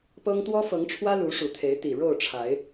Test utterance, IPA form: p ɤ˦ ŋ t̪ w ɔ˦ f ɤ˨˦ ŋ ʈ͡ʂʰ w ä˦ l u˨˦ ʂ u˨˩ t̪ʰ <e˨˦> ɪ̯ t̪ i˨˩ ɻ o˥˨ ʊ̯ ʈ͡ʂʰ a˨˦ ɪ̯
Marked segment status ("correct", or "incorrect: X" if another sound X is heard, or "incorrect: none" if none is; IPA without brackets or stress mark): correct